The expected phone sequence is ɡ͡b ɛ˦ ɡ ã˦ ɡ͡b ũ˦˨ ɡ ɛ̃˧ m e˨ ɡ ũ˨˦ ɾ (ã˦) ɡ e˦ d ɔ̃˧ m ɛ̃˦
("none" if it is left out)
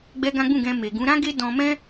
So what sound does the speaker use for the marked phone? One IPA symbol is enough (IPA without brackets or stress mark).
ã˦